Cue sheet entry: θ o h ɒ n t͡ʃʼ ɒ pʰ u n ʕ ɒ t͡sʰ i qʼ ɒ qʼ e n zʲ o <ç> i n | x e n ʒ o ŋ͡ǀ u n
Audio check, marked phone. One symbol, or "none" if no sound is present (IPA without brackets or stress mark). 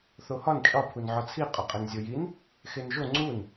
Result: j